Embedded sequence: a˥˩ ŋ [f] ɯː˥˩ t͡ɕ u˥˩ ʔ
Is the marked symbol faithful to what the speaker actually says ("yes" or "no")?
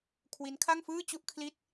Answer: yes